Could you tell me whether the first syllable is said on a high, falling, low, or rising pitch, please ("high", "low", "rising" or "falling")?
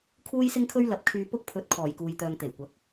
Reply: high